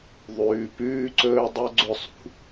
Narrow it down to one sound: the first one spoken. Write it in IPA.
ðˤ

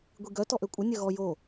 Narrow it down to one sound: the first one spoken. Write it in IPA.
ɡʷ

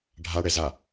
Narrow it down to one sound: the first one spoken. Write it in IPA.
ɖʱ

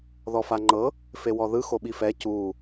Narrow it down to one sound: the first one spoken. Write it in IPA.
ð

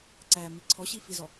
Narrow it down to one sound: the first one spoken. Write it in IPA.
ǀ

